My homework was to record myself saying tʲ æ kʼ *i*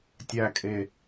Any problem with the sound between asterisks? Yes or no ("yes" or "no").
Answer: yes